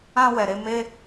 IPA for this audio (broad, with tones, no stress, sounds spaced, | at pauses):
ã˧ w ɛ˨ ɾ e˧ m e˦